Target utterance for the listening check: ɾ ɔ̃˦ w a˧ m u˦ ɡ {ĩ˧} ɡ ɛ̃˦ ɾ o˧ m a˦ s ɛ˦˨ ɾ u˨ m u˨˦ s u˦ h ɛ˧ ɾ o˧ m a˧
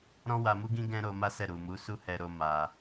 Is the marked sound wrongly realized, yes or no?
yes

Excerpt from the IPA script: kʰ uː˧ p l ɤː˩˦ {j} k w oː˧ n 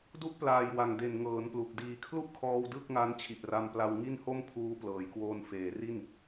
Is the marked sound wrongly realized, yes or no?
no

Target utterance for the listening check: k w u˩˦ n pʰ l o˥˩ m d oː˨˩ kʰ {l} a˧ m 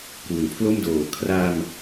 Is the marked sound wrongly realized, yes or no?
yes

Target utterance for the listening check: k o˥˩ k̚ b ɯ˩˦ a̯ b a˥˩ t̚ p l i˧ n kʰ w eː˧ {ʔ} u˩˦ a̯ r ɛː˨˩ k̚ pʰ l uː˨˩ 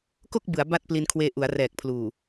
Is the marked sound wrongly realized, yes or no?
no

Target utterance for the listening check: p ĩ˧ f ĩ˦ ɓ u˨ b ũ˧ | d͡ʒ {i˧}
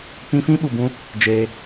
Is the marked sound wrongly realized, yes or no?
yes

